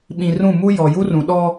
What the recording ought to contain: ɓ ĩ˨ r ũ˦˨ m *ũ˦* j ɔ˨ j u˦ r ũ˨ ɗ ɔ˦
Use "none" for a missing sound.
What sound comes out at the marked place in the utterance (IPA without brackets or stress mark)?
u˦